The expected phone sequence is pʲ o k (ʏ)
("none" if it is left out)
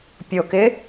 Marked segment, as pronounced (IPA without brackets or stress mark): ɪ